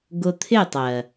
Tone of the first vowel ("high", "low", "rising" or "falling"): low